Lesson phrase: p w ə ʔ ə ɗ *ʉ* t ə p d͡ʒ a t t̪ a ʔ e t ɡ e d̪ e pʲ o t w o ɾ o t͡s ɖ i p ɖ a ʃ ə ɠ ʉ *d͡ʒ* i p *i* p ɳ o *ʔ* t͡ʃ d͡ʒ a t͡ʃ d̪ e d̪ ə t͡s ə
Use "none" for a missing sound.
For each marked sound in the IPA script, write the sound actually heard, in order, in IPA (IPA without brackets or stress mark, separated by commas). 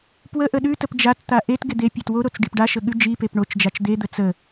ʉ, d͡ʒ, e, none